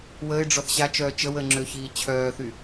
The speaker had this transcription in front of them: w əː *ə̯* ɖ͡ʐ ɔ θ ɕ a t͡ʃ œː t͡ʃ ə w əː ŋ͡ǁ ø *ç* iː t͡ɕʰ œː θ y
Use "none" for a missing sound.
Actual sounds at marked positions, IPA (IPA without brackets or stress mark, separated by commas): ɪ̯, ç